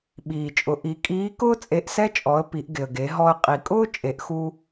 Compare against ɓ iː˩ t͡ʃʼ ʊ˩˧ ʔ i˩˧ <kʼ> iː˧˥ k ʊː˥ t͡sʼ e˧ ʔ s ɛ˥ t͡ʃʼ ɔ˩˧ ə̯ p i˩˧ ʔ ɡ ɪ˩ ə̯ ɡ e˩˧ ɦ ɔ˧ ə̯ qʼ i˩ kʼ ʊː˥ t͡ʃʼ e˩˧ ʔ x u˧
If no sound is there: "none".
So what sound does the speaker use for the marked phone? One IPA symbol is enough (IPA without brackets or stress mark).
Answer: kʼ